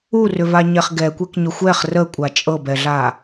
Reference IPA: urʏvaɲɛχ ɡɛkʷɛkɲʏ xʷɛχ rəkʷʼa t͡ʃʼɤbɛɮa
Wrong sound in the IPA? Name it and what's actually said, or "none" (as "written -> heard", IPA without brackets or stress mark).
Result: none